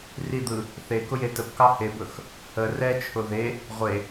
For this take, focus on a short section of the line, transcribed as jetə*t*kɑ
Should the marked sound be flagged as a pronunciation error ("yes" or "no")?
yes